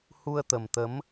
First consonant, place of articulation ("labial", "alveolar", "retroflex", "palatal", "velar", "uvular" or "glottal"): glottal